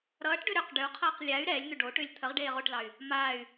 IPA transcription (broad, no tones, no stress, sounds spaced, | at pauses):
ɾ ʌː ʈ ɖ ʏ ɾ ʏ q ɖ ʏ u̯ qʰ ʌː q lʲ a y̯ ɾ ɛː lʲ n̪ ʏ ɖ o ʈ ʏː lʲ t̪ʰ ə ʁ ɖ eː ʁ o ʈ l ɑ y̯ | m aː y̯